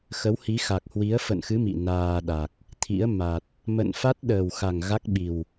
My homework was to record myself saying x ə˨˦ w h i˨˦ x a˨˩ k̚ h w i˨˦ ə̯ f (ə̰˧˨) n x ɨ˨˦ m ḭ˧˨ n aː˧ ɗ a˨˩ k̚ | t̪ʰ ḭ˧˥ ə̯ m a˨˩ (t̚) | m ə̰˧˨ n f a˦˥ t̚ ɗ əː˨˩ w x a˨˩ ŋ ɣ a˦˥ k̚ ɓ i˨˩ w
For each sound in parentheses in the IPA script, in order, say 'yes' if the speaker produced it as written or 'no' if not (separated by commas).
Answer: yes, yes